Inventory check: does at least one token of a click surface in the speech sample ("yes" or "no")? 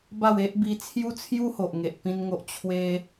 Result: no